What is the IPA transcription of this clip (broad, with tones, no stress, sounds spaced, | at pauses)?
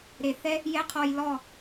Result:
ɾ e˨ θ ɛ˦ | j ɛ˦ qʰ ɔ˧ j l ɔ˦˨